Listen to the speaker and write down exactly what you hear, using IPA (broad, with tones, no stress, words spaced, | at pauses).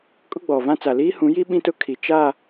kʼʊ˦ɡ͡bɔ˨vã˦ t͡sa˨liː˦hũ˨˦ji˦ ɓĩ˦ tʊ˦kʰi˨ t͡ʃa˦˨